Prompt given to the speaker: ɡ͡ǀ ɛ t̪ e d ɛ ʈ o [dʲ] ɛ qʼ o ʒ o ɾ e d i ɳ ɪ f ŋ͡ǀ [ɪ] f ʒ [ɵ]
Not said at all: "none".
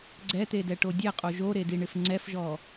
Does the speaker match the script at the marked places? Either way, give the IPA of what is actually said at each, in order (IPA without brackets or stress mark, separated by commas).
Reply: dʲ, ɛ, ɔ